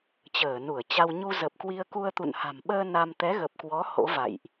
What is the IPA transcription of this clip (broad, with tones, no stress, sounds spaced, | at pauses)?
t͡ɕ əː˧˩ n u˧˩ ə̯ t͡ɕ a˧ w ɲ u˧ z ə˨˩ p̚ k w i˧ ə̯ k u˧ ə̯ t̪ ṵ˧˨ n h a̤˨˩ m ɓ əː˧ n a˧ m t̪ ɛ˨˦ ɣ ə˨˩ p̚ k w ɔ˨˦ h o̰˧˥ v a̰˧˨ j ʔ